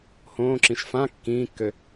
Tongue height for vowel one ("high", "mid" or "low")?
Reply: mid